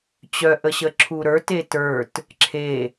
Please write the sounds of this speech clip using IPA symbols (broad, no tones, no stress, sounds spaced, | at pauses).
t͡ɕ œ ʔ ə ɕ ə ǁʰ u ɾ ə˞ t e t ə˞ t | ǁʰ e